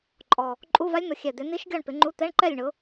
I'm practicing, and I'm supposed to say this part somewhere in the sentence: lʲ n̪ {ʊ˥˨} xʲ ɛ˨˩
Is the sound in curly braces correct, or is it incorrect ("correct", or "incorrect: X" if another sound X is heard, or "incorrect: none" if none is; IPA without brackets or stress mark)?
incorrect: ʊ˨˦